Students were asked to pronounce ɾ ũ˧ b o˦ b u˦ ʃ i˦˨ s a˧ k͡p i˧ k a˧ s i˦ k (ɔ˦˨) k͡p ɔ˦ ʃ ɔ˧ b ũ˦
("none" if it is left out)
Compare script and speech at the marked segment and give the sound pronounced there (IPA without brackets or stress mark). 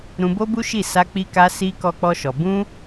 ɔ˦